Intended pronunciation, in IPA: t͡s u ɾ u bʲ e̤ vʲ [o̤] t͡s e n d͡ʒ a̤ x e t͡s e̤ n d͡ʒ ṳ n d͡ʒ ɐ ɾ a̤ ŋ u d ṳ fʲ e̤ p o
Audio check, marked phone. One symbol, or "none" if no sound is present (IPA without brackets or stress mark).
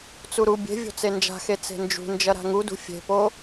o̤